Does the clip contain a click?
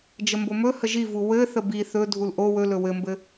no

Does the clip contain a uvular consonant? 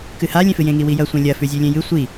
no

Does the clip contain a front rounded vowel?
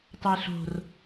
no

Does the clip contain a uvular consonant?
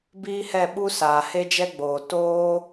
no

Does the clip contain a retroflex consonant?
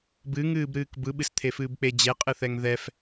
no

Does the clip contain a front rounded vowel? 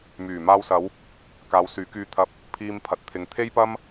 yes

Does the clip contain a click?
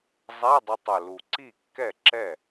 yes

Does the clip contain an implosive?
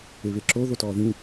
no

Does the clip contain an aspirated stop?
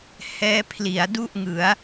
yes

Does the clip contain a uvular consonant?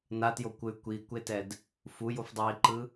no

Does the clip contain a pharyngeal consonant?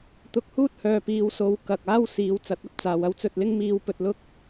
no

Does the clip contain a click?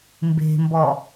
no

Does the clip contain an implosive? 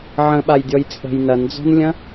yes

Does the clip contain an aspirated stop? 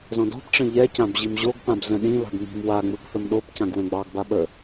no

